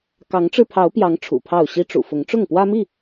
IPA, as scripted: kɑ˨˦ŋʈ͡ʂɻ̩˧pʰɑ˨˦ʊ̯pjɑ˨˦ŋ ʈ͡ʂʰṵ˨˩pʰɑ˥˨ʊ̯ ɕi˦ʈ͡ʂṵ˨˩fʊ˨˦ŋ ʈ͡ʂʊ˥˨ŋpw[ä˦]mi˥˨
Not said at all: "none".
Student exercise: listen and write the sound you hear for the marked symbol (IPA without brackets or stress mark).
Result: ä˦